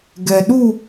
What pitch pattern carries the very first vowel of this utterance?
low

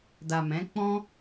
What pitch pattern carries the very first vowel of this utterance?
low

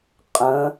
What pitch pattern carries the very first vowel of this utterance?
rising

